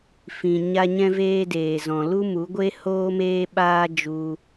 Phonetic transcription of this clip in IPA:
fĩ˧ ɲa˦ɲɛ̃˦veː˦ deː˧zɔ̃˧ lu˦mu˨˦ɡʷe˦ hoː˦meː˦ɓaː˦ d͡ʒu˧

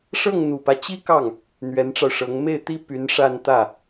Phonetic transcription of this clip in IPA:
ʂɤ˥˩ŋn̪u˨˩pä˦t͡ɕi˥ kɑ˥˩ŋ | n̪ɥɛ˧˥nʈ͡ʂɑ˧ʊ̯ʂɤ˧˥ŋ me˥˩ɪ̯t̪i˥ py˧˥nʂa˥˧nt̪ä˥˩

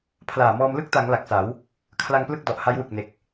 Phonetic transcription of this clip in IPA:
pʰlaː˨˩mɔː˧m lɯ˥˩k̚ta˩˦ŋ la˨˩k̚sa˩˦w | kʰla˧ŋplɯ˥˩k̚dɔ˨˩ʔ ha˦˥jwɯ˨˩k̚ne˨˩k̚

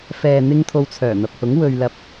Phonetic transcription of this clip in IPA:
fɛː˨n̪ɪ˧ŋ t̪ʰo˧wt͡sʰœː˨˩n̪ɐ˨p̚hʊ˨˥ŋ wɵ˨ɥlɐ˨p̚

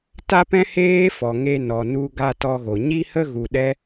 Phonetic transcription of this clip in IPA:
ta˦pɛ̃˦ heː˦fɔ˨ ŋe˧ nɔ˨nu˧ɡa˧ tɔ˧ɣo˨ ɲi˧hə˧ ɣu˨ɗɛ˦

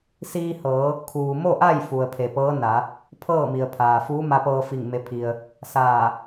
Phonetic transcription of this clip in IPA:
siː˧hɤː˩˧ | kʰuː˩mo˥˨ʔa˥˨j fu˩ə̯pʰe˩pɤː˧˥ na˩˧ | pʰɤː˥˨mi˩ə̯pʰaː˩ fuː˧˥ma˧pɤː˧fi˧˩ŋ me˧˥pʰi˧ə̯ | saː˧˩

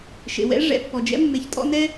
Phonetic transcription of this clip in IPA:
ʃḛ˨wɛ̰˦ ʐɛ̰˨ pːɔ˨d͡ʒɛ̰˦ mːe˨çtʼɔ̰˦nɛ˦

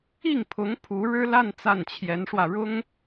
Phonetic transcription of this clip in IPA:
i˥˩ŋpʰʊ˧˥ŋ pʰu˧˥ɻɻ̩˥la˥˧n t͡sa˥˩nt͡ɕʰjɛ˧˥nʂwä˧ ɻʊ˥ŋ

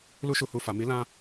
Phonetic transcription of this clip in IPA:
lu˦ʃu˧hu˧ fa˨mi˨˦lã˧

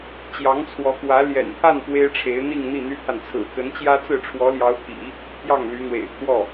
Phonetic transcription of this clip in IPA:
t͡ɕjɑ˧˥ŋt͡sʰwɔ˧˥kwä˧˥ ljɛ̰˨˩nt̪ʰa˥˩n pwe˥ɪ̯ʈ͡ʂʰe˧˥ɪ̯ n̪i˥˧ŋn̪i˥˩n̪y˥t̪ʰa˨n t͡sʰɹ̩˨˩kə˧˥nt͡ɕjä˥t͡sɹ̩˥˩ ʈ͡ʂʰwɔ˧˥ljɑ˧˥ʊ̯t̪ʰḭ˨˩˦ | pʰjɑ˥˩ŋly˧˥n̪wḛ˨˩ɪ̯pʰwɔ˥˩

